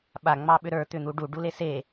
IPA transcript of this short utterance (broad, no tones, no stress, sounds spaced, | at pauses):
ɓ a ŋ͡m ɑ ɓ ʏ ɾ ə˞ t̪ ʏ n̪ u ɖ u ɖ u l e s e